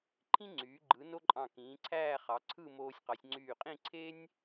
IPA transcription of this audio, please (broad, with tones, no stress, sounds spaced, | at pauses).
ǃʰ ĩ˥ ŋ͡ǀ yː˩˧ ɡ͡ǃ ɯ˩˧ n o˥ ǃʼ ɑ̃˧˩ k ĩː˩˧ ǀʰ æː˥˧ χ ɑ˩˧ ǀʰ ɯ˥˧ m oː˧ sʲ q ɑ˩˧ sʲ ŋ͡ǀ yː˧˩ qʼ ĩ˥˧ ǀʰ e˥ nʲ